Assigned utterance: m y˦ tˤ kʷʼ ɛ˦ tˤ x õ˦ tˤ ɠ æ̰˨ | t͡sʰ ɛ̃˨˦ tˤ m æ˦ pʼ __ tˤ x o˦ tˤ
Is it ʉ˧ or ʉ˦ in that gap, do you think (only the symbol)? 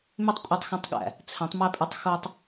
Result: ʉ˧